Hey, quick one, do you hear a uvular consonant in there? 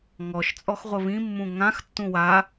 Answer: yes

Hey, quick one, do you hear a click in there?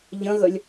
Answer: no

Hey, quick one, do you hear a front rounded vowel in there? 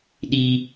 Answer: no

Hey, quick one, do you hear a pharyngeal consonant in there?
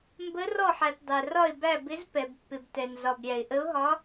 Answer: yes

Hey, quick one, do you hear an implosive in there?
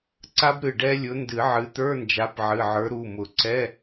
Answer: no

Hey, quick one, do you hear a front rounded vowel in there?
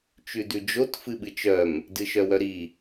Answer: yes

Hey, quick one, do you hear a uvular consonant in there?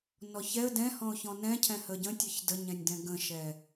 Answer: no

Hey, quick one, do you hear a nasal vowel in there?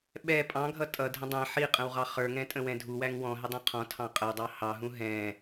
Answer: yes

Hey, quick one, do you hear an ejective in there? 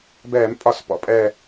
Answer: yes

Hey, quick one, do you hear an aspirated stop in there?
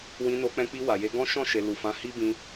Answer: no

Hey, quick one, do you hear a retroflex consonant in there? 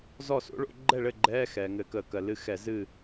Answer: yes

